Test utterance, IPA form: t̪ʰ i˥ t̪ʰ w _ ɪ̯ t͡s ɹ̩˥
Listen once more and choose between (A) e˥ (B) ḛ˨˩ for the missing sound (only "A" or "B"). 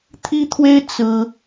A